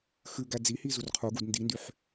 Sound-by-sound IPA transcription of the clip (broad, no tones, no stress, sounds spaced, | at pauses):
x ʉ ɡ æ d͡z i h i z u r qʰ u ɡ u d n d i n d y ħ